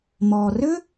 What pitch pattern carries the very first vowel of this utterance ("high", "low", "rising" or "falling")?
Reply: low